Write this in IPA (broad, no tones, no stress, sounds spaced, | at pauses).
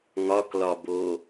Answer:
ŋ ɒ k l ɒ b o